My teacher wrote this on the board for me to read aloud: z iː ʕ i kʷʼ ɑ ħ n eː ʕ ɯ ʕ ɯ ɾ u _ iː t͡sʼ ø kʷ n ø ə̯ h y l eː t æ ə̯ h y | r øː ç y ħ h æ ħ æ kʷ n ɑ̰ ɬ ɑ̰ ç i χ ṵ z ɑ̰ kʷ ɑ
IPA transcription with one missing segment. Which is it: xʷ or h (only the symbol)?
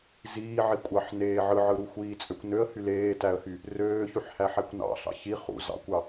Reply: xʷ